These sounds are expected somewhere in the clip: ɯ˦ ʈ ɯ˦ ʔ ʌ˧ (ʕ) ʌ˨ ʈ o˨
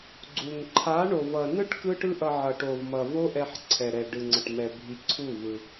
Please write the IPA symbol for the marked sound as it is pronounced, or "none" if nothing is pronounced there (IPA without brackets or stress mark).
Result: ʕ